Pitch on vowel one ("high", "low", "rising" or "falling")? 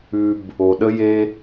high